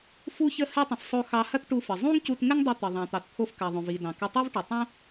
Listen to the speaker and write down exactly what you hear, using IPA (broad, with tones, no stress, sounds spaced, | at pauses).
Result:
f u˥ ç ə˥ h ɘ˥ tˤ ə̃˩ f sˤ o˧ x ɑ˧ h ɐ˥ t ʈ u˧ f ə˩ zˤ ũ˥ ŋ c u˧ t ŋ ɘ˥ ŋ dˤ ɘ˧ t̪ ə˩ ðˤ ɑ̃˩ t̪ ɑ˩ t t̪ʰ o˧ f k ɐ˩ ðˤ õ˩ v i˩ d ɑ̃˩ k ɐ˧ tˤ i˥ v ʈ ə˩ tˤ õ˥